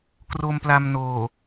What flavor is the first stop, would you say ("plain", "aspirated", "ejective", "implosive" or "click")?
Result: plain